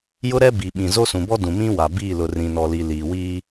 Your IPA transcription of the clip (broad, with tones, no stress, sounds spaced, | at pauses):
j ʊ˦ ɾ ɛ˦ b i˨ ɓ ĩ˨ z o˦ s ũ˨ b ɔ˦ d ũ˨ m ĩ˦ w a˨ b iː˦˨ l ʊ˨ r ĩ˨ n ɔ˨ l i˨ l iː˨ w iː˦